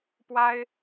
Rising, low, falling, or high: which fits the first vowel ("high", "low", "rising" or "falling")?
high